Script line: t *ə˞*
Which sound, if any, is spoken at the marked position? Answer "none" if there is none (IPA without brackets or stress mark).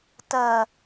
ɜ